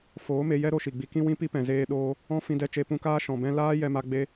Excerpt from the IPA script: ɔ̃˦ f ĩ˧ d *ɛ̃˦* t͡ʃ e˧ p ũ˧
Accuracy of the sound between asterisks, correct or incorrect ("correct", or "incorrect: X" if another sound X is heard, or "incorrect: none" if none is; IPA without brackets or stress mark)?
incorrect: ɛ˦